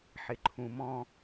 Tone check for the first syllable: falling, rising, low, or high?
low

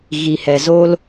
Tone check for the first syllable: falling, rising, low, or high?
low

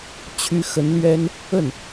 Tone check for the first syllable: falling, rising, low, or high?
rising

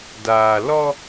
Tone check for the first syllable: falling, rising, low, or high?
low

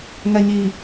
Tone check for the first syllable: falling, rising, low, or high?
low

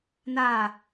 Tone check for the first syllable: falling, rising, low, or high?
falling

